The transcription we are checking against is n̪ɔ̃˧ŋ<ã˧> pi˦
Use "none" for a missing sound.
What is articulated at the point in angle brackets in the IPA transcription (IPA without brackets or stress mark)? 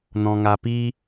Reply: a˧